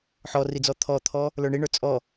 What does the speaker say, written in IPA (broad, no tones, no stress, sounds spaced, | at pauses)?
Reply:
ħ ɔ r i d͡z ɔ t̪ʰ ɔ t̪ʰ ɔ | l ə˞ ɳ i ɳ ə˞ t͡sʼ ɔ